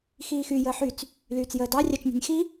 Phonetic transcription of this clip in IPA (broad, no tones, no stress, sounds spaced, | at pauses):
x iː x y j əː ħ y t͡s | l yː t͡s j əː d ɑ rʲ ɑ t͡ʃ nʲ ɑ̤ nʲ x i